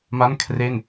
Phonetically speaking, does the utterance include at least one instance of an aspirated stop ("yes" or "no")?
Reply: yes